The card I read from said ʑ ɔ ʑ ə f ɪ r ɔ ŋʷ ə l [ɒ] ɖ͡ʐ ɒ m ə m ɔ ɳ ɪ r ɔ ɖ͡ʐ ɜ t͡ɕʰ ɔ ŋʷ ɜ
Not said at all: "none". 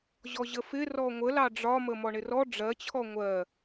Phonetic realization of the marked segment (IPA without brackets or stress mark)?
ɑ